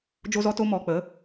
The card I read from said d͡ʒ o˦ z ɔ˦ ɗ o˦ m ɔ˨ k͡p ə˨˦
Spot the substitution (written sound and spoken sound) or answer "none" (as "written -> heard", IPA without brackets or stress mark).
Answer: ɗ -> t